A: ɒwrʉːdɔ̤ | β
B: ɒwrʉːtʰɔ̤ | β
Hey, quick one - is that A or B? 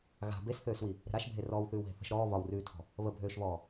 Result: B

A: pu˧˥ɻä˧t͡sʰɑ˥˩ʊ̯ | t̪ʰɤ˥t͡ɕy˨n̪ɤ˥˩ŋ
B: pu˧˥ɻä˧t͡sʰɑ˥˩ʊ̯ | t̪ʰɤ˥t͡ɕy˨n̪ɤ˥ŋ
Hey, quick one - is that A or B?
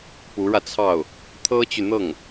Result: A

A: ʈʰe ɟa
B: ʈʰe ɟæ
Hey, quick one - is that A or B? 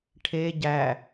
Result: B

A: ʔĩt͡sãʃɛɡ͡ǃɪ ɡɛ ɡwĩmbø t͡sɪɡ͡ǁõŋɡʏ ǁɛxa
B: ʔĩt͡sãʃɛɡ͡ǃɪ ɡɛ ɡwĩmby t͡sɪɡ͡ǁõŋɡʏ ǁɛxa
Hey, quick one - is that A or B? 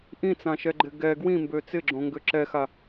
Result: A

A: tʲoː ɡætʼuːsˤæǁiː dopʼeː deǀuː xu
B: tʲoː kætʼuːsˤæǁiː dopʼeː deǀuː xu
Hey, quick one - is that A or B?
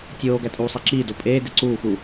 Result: A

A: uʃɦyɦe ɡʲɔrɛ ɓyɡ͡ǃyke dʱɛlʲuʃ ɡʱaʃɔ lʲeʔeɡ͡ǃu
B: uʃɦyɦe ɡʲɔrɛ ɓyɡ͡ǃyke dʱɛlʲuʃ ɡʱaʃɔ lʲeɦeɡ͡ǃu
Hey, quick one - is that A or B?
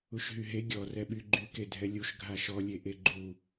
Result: A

